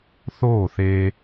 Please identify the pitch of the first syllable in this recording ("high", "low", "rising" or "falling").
falling